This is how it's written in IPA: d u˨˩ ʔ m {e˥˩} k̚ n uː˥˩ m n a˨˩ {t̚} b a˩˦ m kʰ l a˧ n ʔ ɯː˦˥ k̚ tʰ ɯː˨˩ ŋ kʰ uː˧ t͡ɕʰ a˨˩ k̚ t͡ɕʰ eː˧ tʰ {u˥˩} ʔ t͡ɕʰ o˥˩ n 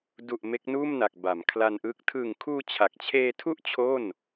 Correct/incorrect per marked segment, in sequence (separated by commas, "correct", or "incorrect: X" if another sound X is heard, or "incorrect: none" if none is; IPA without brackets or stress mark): incorrect: e˦˥, incorrect: k̚, correct